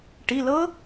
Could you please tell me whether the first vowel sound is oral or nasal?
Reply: oral